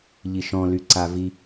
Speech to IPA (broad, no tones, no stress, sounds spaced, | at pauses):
ʎ i ʃ ɔ̃ l y ǀ a v i